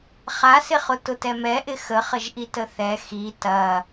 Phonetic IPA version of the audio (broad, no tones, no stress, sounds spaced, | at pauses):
χ a s ɪ χ ʊ t ʊ t ɛ m ɛ ʔ ɪ x ə χ ə ʒ ʔ i t ə θ ɛ x i t ɐ